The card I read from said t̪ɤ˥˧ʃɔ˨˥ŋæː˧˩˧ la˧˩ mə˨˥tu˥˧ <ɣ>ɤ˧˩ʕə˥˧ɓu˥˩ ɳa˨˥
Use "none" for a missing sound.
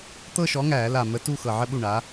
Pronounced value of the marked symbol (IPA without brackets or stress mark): x